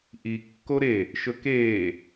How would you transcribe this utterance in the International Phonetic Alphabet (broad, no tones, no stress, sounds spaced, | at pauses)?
ʔ i kː o ɾ e | ʃ ɵ k eː